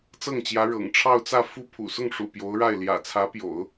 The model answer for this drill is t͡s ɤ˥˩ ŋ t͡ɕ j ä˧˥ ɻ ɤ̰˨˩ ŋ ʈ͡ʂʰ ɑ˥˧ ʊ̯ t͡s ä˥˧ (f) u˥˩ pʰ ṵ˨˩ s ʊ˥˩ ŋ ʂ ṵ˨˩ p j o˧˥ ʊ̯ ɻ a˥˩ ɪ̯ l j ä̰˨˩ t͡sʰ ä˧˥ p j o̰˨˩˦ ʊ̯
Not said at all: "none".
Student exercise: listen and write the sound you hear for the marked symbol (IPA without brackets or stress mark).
f